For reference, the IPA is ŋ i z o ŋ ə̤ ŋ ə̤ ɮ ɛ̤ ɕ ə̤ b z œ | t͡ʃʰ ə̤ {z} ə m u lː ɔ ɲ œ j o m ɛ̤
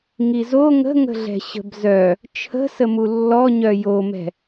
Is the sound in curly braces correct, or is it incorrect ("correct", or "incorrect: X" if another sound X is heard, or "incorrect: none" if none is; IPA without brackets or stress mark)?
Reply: incorrect: s